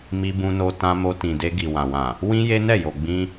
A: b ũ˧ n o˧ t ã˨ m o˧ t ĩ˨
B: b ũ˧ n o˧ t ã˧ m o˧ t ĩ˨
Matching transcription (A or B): B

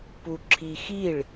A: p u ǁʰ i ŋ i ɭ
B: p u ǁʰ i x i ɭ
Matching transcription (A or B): B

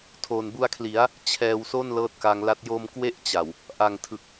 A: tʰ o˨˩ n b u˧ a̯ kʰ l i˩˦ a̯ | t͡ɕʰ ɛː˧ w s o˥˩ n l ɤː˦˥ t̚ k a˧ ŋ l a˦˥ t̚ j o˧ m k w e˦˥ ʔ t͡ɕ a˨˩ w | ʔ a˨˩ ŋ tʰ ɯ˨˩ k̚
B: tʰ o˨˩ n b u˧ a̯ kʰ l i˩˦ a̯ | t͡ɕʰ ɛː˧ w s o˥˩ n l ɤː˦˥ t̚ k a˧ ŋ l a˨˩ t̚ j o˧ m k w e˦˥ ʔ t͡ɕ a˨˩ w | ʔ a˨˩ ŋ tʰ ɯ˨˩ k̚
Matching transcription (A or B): A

